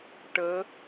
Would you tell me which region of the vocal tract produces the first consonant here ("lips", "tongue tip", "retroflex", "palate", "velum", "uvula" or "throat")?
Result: retroflex